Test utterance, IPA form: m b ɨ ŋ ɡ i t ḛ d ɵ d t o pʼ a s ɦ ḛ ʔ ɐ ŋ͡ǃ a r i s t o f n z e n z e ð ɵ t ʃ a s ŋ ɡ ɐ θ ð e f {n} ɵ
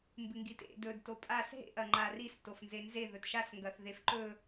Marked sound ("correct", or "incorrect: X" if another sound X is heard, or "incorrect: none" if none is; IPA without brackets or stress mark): incorrect: ǃ